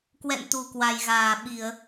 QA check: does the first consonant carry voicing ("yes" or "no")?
no